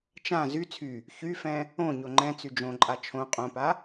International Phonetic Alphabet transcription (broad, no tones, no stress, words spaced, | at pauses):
t͡ʃã zy t͡sʰy | çyfɛ̃ | õ ɲoŋ͡ǃɛ̃ t͡syd͡ʒõ ǃʼat͡ʃʰõ qʼõpa